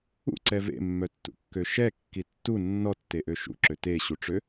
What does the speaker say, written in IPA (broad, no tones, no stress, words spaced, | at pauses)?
ṵǀɛ vḛmːœtːṵkːø ʃɛkːi tːu nːɔtːeʔø ʃṵǁø teɕuʈ͡ʂø